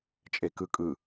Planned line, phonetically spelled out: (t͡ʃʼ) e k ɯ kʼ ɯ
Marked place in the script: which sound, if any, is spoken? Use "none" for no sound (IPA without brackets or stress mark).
t͡ʃʼ